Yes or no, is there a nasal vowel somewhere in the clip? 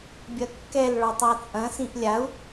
yes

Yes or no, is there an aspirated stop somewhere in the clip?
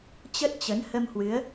no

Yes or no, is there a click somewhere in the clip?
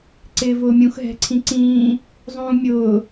yes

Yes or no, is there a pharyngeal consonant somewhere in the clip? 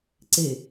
no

